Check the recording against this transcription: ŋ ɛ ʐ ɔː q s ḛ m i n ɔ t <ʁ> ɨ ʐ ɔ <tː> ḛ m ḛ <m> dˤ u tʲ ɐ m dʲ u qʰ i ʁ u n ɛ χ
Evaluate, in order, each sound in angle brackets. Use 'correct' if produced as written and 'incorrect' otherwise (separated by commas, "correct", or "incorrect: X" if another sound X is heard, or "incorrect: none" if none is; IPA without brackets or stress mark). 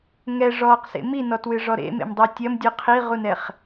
incorrect: w, incorrect: ɾ, correct